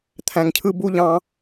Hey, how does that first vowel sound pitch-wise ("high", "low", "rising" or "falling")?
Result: low